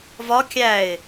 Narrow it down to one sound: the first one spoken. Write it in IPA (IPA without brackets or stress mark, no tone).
v